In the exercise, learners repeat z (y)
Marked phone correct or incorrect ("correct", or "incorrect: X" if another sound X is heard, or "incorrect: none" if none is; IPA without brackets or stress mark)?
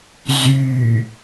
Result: correct